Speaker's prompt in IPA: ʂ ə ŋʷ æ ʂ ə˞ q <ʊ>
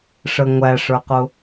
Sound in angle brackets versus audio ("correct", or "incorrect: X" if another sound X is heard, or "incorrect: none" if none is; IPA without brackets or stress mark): correct